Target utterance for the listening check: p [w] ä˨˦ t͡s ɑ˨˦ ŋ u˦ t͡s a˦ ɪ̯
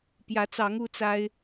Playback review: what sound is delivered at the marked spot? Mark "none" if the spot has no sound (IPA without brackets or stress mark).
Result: j